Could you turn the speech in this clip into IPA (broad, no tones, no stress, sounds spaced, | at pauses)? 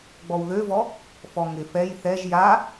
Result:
ɡ͡b ɔ w ð ø v ɔ | f ɔ ŋ ɪ f ɛ j θ ɛ ʒ j a